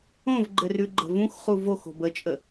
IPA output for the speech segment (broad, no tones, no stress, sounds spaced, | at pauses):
õ v ɡ͡ǃ ɘ r ʉ ɡ͡ǃ ə̤ v ũ x χ u v o x o̤ b ə t͡ʃʼ ə